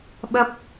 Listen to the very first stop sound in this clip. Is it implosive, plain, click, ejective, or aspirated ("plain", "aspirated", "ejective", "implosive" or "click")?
implosive